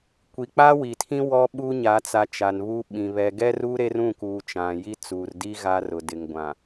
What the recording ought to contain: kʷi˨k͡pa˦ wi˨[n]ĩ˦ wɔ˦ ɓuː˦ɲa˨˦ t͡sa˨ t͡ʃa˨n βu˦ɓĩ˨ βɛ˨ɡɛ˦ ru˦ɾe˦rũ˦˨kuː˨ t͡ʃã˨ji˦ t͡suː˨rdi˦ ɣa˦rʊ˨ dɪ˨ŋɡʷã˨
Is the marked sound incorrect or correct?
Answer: incorrect